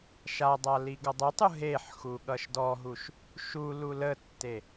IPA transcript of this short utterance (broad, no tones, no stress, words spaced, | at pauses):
ʃadˤa liɡʌdˤətˤu ɦeħxu ɠʌʃdɔɦuʃ | ʃu lulətːe